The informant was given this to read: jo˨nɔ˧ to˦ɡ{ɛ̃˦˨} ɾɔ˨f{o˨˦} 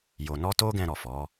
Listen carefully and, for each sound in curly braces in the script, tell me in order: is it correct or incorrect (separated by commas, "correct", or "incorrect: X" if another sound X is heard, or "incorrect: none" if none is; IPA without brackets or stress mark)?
incorrect: ɛ̃˧, incorrect: ɔ˨˦